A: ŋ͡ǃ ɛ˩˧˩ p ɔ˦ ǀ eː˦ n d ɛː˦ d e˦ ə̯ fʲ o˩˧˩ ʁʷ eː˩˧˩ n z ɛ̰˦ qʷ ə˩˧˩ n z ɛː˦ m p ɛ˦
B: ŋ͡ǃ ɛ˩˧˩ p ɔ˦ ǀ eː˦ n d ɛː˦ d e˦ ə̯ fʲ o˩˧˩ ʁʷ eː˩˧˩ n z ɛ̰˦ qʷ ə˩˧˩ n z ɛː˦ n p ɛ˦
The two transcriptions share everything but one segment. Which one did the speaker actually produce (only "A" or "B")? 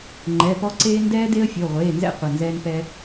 B